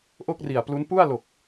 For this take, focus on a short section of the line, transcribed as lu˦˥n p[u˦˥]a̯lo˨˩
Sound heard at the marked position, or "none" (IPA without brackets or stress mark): u˥˩